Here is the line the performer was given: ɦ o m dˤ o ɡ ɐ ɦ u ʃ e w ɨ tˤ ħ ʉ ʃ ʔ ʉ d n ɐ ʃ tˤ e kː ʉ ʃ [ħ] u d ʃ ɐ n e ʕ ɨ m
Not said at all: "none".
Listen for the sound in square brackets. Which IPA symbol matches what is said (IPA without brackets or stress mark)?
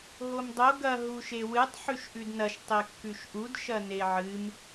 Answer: ʔ